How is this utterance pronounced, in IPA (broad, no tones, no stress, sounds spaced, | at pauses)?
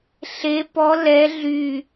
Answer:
ɬ e p ɔ l ɛ ɮ y